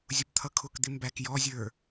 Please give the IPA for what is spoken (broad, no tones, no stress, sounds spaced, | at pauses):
zʲ ʊ p t̪ʰ ʌ kʰ ʊ k d̪ ɪ m b æ k j ɔ zʲ ə˞